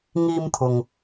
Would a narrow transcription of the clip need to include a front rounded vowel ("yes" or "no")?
no